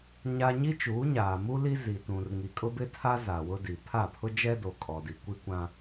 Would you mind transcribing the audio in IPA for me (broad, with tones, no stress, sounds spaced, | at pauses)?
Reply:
ɲ a˦ ɲ i˦ t͡ʃ uː˨˦ ɲ aː˨ m u˦ l i˦ z i˨ t ũ˨ r ŋ i˨ kʼ ʊ˦ b ɪ˦ tʰ a˦ z a˨ w ʊ˦ d i˨ pʰ a˦˨ pʰ ʊ˦ d͡ʒ ɛ˦ d o˨ kʼ ɔ˨ d i˨ kʷ i˦ kʷ ã˦